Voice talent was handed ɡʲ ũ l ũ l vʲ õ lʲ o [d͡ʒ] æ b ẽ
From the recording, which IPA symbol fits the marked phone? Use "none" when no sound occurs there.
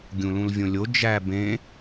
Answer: d͡ʒ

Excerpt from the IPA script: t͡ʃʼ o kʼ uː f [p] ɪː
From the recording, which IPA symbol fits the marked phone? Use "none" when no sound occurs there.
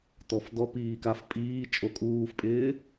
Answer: pʼ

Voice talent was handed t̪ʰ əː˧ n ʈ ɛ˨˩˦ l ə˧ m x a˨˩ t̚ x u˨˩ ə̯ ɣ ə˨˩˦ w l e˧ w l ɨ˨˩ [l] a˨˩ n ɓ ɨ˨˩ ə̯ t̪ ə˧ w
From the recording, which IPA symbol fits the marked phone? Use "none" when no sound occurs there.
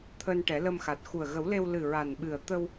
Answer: ɹ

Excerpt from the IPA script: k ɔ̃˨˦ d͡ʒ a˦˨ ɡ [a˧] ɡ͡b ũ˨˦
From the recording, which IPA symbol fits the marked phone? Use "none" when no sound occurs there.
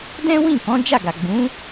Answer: a˨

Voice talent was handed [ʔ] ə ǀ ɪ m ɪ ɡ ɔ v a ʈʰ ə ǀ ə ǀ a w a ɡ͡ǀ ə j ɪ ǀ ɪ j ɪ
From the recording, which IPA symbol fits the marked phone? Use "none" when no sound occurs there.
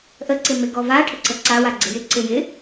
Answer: ʔ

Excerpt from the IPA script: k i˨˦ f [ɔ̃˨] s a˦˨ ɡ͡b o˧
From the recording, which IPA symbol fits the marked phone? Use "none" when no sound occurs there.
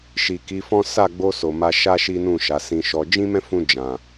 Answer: ɔ̃˦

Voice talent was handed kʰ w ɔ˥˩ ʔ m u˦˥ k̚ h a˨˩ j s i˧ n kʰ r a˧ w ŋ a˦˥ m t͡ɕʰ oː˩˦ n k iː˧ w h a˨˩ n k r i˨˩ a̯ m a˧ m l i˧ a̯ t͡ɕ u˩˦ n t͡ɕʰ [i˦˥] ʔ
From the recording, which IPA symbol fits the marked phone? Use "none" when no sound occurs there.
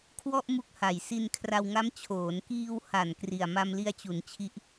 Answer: i˦˥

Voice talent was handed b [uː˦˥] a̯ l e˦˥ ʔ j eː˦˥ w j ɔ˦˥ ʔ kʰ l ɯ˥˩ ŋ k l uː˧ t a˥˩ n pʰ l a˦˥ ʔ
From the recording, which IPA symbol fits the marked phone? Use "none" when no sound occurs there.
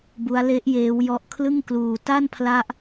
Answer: u˦˥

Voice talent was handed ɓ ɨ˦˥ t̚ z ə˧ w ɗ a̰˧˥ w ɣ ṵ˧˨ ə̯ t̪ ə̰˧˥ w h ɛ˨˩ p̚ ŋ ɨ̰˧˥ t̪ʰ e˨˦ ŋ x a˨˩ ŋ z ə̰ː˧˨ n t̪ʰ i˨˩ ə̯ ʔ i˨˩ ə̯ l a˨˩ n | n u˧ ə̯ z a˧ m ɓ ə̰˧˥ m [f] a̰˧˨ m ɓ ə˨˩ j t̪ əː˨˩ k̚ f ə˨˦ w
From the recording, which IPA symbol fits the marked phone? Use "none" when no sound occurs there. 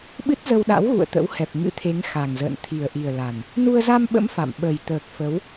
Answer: f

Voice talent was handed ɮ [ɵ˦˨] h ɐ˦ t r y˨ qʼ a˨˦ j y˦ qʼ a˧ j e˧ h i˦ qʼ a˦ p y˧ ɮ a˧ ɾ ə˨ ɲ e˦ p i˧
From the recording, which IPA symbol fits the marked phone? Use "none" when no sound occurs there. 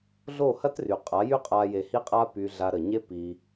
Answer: o˦˨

